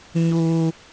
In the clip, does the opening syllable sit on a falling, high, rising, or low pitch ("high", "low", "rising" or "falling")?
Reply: low